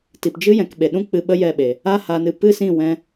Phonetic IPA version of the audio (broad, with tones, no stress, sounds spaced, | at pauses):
t i˨ p d͡ʒ ɨ˦ j ɛ̃˧ k ɓ e˨ ɗ ũ˦ k͡p ɨ˧ ɓ ə˦ j ɛ˦˨ ɓ e˨ | a˦ h aː˧ n ɨ˧ p ɨ˦ s ĩ˦˨ w ɛ̃˧